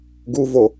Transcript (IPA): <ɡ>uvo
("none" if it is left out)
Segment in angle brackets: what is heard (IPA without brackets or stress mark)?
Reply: ɡ